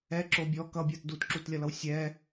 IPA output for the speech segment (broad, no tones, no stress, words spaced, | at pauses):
ɛǁo bʲɔ kʌbʲəːt dutǁutlʲʌlʌw sʲɛː